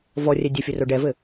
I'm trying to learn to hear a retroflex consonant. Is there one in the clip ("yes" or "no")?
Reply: yes